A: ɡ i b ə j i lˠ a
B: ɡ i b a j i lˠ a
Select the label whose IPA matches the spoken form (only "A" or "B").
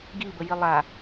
A